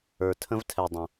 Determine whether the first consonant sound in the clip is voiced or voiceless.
voiceless